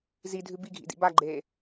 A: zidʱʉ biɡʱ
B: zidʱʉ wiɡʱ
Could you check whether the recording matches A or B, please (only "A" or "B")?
A